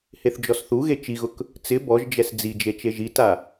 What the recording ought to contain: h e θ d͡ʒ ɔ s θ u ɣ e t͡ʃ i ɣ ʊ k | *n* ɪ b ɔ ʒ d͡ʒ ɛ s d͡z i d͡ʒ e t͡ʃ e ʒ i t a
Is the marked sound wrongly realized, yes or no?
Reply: yes